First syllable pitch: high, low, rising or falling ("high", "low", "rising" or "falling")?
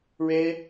high